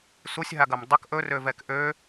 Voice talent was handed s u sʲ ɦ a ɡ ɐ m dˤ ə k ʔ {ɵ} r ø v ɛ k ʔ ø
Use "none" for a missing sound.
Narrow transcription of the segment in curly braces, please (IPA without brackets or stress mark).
ɵ